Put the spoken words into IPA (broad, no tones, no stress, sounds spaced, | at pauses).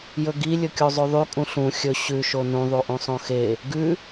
j ɵ ɡ i lʲ ɵ kʲ o zˤ ʉ ðˤ y kʼ ũ ɬ ũ xʲ ɵ ɕ ʉ ʃ o n ũ ðˤ u ʔ ũ sˤ õ x e | ɡ ʉ